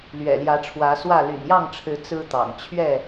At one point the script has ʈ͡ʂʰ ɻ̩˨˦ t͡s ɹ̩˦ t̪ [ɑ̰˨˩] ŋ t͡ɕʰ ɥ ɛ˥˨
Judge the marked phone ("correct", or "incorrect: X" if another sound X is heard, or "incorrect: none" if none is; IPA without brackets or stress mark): correct